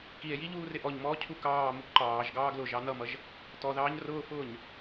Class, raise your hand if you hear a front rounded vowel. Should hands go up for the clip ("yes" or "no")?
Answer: no